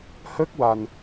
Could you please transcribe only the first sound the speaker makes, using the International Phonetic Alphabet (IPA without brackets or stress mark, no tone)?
h